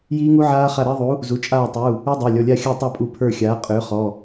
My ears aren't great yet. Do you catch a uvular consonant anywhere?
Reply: yes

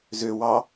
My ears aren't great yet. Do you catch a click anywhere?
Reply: no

